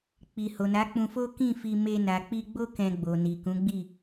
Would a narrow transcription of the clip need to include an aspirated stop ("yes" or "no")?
no